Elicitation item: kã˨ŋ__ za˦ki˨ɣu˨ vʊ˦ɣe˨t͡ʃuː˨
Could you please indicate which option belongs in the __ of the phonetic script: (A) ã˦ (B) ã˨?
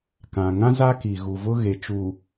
A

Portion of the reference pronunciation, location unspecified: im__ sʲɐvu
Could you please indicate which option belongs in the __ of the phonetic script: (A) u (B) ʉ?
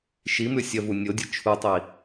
B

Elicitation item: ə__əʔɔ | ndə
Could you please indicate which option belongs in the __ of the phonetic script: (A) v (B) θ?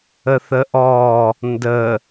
B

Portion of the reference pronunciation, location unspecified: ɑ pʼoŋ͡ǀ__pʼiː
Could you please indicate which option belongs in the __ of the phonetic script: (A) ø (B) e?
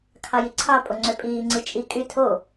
A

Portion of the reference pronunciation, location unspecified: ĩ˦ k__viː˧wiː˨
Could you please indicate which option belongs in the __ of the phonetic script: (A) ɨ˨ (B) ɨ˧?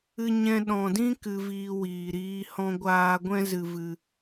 B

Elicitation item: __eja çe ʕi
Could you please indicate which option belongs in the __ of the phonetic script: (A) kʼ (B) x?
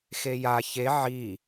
B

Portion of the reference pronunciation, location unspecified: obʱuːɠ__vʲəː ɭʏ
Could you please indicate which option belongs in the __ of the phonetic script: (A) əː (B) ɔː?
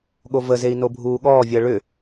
B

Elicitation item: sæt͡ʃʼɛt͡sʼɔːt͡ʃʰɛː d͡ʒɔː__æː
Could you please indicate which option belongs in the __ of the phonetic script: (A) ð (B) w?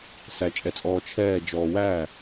B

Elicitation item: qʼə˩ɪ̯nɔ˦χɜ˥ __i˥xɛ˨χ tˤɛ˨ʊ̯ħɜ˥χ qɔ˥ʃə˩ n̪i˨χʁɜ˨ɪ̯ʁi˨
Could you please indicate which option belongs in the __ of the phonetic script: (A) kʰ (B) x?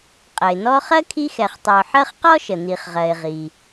A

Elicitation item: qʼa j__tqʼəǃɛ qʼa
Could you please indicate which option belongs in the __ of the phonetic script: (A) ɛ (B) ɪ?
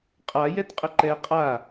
A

